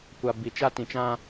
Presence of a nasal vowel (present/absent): present